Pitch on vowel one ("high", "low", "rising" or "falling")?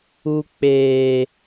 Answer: high